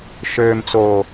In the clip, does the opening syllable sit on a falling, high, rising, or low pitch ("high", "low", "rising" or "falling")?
low